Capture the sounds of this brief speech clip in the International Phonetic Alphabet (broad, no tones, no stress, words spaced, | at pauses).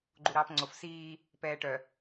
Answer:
ɡ͡ǃuɾɑːpŋ͡ǀof siː | pɛːʈœ